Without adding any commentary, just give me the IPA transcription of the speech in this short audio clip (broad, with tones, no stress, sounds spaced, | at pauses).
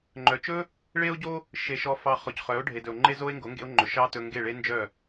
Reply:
ŋ͡ǃ œ˨ t͡ʃ ɵ˦ | ɭ e˦ o̯ ɟ o˦ | ʃ e˨ ʃ ɔ˨ f ɑ˨ χ ɔ˨ c χ œ˨˦ o̯ ɖʱ e˨ d ɵ˨ o̯ ŋ͡ǃ e˦ z o˦ e̯ ŋ ɡ o˨˦ ŋ ɡ ḛ˧ o̯ ŋ͡ǃ ɵ˨ ʃ ɑ˧ t ɵ˧ ŋ ɡ e˦˨ ɭ e˧ n d͡ʒ œ˦˨